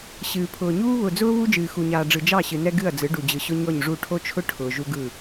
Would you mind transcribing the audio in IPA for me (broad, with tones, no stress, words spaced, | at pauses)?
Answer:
ɕɨː˨pʰʊː˨ɲuː˦ βʊ˨d͡zʊː˦ βu˦ d͡ʒɨː˨xu˨ɲaː˨ ɖ͡ʐɯ˨d͡ʒɑ˦˨ɕɨ˨nɛ˦ ɡɨ˦˨ɐ̯d͡zɯ˨˦ɖu˨ d͡ʑɯ˨ɕʊ˦ɲɔ˦˨ɲʐu˦˨ ʈʰo˦t͡ʃʰʊ˦ ʈʰʊː˨ʒu˦ ɡɯ˦˨